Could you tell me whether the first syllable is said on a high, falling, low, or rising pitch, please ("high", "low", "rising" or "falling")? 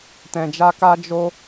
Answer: low